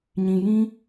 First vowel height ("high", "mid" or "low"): high